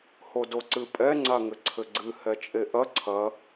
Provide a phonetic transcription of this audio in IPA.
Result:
h o d o ǀ ɨ pʼ ɛ ŋ͡ǀ a ŋ ɘ ǀʰ ɘ ɡ͡ǀ ɨ h ɛ t͡ʃʼ e ʔ ɐ ǀʰ ɐ

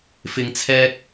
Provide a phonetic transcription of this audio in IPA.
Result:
f ɪ˨ ŋ t͡sʰ ɛː˧ k̚

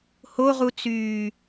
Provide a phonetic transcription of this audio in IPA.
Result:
h o ʁ u t͡s yː

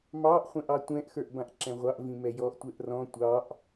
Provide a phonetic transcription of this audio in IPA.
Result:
m ɑ ʔ χʷ ɛ̃ ʔ ɑ tʷ ɛ̃ ʔ x ə˞ ʔ b ã ʔ ǁ ɛ̃ ʁʷ ɑ ʔ v ĩ m ɛ j ɔ ʔ tʷ ɛ ʔ r ɔ̃ tʷ ɑ ʔ

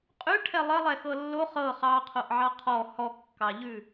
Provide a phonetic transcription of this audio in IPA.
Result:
qʼ ʉ ʈʰ ɛ lˠ ɘ lˠ ɛ x ɤ lː o χ ɤ χ ɑ qʰ o ʔ ʕ ɑ qʰ ɔ h ɔ kː ɑ ʎ ʉ

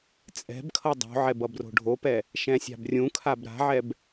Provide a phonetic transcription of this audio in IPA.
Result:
t͡sʼ ɛ̤ b kʰ ʌ dˤ o̤ ʕ ɛ b ʌ b r o̤ ɖʱ o p ɛ | ʃ ɛ̃ sʲ a̤ b rʲ ũ kʰ a b ɾ a̤ ʕ ɛ b

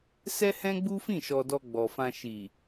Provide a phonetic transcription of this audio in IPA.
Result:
s ɛ˦ h ɛ̃˦ ɡ͡b u˦ f ĩ˦˨ ʃ ɔ˧ d ɔ˧ ɡ͡b ɔ˨ f ã˧ ʃ i˨

